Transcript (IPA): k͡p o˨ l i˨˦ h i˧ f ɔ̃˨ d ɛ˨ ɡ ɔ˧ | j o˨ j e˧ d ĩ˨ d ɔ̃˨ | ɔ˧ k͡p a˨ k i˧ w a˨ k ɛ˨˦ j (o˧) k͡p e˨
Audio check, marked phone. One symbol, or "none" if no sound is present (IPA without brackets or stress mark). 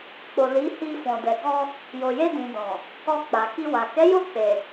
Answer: o˧